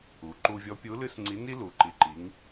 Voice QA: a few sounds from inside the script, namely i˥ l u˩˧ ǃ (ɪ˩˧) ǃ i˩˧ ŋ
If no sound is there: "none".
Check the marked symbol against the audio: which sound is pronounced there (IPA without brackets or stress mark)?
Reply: i˩˧